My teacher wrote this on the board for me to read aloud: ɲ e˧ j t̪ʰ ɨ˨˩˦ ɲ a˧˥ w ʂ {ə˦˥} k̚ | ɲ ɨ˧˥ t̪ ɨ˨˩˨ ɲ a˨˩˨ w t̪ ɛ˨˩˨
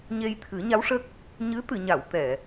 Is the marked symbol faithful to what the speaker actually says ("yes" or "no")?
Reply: yes